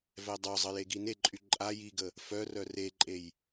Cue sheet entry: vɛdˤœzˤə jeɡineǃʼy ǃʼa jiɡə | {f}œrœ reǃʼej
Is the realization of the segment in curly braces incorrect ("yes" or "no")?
no